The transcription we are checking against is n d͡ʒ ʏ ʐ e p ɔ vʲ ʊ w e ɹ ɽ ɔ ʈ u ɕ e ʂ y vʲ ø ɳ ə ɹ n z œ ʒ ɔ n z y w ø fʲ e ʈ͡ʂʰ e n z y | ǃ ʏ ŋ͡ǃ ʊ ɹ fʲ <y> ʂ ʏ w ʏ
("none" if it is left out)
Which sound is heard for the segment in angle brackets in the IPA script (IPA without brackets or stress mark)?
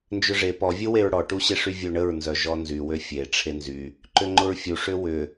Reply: u